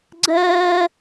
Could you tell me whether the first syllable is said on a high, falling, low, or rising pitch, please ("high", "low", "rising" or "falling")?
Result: high